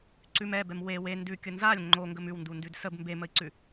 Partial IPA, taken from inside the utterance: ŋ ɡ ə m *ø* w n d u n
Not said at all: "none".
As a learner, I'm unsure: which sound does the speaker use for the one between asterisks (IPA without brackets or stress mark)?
ʉ